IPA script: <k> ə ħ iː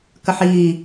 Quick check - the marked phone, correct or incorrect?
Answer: correct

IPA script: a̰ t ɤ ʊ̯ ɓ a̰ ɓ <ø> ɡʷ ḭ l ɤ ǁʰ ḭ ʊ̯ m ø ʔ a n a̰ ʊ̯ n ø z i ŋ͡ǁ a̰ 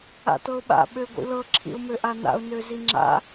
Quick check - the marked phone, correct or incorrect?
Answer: correct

